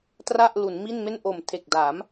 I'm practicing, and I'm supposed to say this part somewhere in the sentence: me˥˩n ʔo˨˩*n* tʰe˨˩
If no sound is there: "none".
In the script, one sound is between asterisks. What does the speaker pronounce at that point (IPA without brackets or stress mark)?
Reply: m